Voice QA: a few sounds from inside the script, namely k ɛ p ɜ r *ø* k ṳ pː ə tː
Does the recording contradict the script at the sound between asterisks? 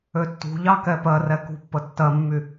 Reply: yes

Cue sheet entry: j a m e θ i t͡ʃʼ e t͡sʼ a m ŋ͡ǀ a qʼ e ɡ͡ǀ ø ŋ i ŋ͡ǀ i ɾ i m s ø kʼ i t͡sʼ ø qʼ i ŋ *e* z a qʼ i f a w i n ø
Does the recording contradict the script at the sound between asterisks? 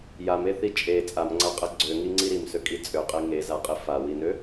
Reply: no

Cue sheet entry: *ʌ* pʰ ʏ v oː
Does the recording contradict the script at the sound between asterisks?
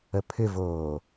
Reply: yes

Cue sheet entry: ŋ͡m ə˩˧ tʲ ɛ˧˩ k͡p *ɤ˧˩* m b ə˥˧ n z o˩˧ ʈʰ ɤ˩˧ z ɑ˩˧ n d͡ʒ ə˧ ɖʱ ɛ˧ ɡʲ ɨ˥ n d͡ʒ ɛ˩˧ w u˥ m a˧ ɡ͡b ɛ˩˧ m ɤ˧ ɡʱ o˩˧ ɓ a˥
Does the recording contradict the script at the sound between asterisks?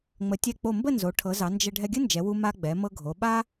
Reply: yes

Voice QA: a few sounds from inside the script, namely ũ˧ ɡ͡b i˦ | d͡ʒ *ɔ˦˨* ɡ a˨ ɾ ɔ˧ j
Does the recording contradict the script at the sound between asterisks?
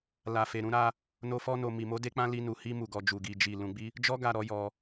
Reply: yes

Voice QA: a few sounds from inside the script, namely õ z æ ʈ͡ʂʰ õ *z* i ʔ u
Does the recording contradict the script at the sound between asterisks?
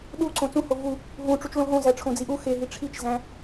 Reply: yes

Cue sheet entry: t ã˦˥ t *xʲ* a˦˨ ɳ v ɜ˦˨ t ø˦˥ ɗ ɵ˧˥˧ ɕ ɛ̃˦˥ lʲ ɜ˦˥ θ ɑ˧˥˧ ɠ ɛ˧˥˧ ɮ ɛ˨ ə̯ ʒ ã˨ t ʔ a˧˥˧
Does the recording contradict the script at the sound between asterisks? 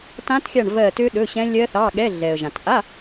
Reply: no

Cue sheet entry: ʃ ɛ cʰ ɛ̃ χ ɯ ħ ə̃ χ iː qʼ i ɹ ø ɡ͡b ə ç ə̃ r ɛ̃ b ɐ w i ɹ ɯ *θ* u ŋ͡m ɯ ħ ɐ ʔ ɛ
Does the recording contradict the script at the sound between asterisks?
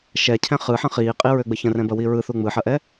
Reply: no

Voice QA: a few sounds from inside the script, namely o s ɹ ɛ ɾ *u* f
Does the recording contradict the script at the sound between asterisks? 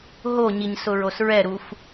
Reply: no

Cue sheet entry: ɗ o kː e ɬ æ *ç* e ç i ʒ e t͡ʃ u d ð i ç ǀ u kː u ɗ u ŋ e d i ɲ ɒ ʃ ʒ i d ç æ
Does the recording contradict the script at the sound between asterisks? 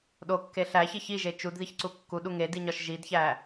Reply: no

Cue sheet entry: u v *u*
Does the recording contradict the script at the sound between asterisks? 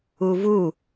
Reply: no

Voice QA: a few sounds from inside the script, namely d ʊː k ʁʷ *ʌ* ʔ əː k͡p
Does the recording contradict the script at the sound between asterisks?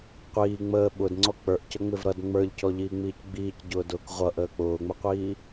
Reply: no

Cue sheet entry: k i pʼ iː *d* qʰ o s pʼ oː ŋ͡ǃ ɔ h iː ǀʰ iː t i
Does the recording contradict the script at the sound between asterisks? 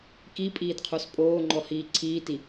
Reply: no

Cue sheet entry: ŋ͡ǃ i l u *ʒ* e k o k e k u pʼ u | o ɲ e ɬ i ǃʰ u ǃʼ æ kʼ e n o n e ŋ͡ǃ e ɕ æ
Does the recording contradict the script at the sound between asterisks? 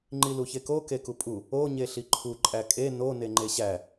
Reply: yes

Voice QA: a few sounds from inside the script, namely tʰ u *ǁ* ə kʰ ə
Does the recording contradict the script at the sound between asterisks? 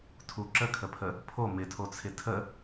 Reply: no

